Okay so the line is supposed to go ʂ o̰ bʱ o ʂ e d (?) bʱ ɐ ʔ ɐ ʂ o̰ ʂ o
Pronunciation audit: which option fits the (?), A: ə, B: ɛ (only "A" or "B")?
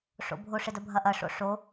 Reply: A